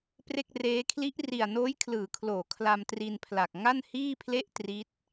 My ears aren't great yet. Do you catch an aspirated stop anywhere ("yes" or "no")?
yes